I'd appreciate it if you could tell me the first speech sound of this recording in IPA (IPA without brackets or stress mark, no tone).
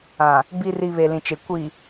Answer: ã